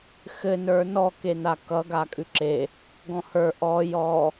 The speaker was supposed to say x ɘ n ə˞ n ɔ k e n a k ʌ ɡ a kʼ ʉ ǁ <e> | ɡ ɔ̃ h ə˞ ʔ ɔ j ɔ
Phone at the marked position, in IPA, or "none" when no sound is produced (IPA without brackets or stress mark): e